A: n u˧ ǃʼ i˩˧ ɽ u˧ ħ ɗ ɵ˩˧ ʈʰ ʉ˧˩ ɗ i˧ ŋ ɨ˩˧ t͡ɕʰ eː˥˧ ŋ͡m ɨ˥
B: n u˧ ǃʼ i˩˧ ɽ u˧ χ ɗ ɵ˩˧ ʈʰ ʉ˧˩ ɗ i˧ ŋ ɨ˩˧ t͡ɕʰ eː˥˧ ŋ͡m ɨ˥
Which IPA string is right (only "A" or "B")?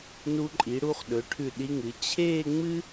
B